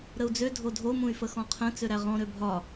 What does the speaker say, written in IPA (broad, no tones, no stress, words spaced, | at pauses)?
ɾəu̯d͡zø dʱodʱo mũy̯fəxɔ̃qʰə̃ t͡søɾæʁɔ̃ ɾøbʱɒ